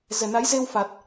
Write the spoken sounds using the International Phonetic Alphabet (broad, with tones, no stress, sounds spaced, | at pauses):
z ɛ˨˩ n a˨˦ j z e˧ w f a˨˩ t̚